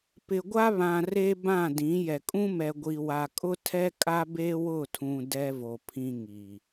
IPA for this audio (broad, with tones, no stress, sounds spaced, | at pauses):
p ɪ˨ ɡʷ a˦ β ã˨ r e˦ b ã˦˨ d ĩ˨˦ j ɛ˨ kʼ ũ˦ m ɛ˨ ɡʷ i˨ w a˨ kʼ ʊ˦ tʰ ɛ˦ kʼ a˦ b e˦ w ʊ˦˨ tʰ ũ˨ d ɛ˦ v o˨ pʰ ĩ˦ ŋ i˨